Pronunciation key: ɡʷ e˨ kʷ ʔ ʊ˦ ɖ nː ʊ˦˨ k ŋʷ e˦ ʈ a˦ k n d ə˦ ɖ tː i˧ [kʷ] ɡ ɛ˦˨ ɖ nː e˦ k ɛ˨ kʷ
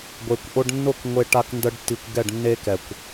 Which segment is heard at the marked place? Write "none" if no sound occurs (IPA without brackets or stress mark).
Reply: kʷ